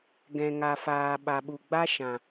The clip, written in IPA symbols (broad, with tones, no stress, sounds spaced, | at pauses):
ɡ ɛ̃˨ ŋ a˨ f aː˨ ɓ a˨ ɓ u˨ ɡ͡b a˦ ʃ ã˨